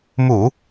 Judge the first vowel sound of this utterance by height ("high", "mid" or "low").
high